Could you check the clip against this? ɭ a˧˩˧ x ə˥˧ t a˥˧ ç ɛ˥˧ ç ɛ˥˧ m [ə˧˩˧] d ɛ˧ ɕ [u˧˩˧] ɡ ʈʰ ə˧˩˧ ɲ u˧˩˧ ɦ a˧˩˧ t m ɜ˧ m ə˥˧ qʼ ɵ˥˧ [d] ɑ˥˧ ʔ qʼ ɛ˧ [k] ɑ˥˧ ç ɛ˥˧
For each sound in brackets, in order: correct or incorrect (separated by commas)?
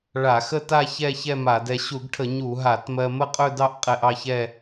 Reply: incorrect, correct, correct, incorrect